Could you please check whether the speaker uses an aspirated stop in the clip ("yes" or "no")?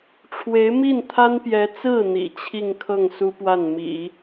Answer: yes